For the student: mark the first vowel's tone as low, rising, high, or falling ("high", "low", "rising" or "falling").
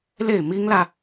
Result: falling